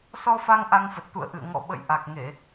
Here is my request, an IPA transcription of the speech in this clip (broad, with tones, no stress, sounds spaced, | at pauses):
s ɔ˧ f a˧ ŋ ʔ a˧ ŋ f ə˨˩ t̚ t̪ ṵ˧˨ ə̯ ʔ ɨ̰˧˨ ə̯ ŋ ɔ̰˧˨ ɓ ə̰˧˨ j ʔ a˨˩ k̚ ŋ e˧˩˨